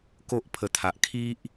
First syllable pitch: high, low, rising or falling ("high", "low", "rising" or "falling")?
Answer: high